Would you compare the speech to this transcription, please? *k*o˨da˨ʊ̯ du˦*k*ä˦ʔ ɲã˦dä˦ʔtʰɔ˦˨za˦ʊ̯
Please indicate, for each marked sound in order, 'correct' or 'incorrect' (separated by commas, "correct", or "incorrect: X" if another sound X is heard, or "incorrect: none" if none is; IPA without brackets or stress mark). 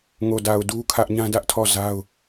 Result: incorrect: ŋ, incorrect: kʰ